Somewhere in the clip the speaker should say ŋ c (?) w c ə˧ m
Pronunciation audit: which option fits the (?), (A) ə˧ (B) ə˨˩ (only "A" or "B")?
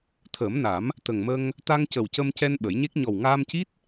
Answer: B